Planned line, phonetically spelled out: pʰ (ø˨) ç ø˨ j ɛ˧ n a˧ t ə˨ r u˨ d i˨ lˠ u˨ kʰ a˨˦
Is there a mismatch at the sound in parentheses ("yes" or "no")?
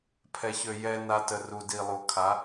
yes